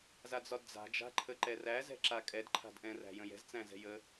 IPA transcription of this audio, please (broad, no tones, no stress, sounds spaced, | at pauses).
z a d͡z ɒ d d͡z a̤ d͡ʒ a̤ ǃʰ ə ǃ ɛ r æ z ɛ̤ ǁ a kʼ ɛ d ǃʰ a̤ d ʔ ɛ̃ r æ̤ j ə̃ j ɛ̤ z t͡s æ̃ z ɛ̤ j ə